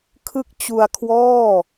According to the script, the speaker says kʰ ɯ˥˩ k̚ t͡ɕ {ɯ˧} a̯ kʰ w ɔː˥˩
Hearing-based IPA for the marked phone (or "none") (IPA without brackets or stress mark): u˧